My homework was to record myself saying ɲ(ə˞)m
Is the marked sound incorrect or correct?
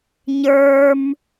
correct